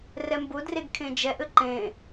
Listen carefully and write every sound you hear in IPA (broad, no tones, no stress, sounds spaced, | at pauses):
r ɛ m b ʊ d r e ɡ kʰ ẽ d͡ʒ ɛ ʔ ɘ ǃ ẽ